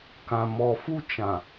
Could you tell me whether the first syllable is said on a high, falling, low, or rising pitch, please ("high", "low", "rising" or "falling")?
low